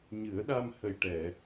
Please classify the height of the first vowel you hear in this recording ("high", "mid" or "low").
high